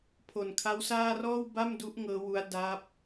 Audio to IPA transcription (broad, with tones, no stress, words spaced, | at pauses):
pʰo˨˩nkʰa˦˥wsaː˥˩ rɔː˥˩wba˥˩mdu˦˥ʔ ŋɤː˦˥wu˦˥a̯ da˦˥p̚